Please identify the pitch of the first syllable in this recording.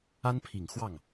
high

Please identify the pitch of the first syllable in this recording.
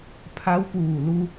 rising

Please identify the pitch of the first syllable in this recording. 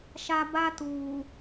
low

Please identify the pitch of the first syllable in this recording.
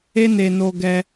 high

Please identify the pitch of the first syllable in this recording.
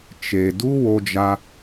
low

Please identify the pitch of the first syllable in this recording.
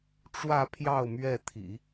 falling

